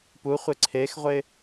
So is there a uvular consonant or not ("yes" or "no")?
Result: yes